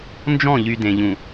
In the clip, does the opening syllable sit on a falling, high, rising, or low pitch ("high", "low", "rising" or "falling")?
falling